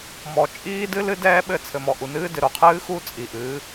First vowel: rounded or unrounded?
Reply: rounded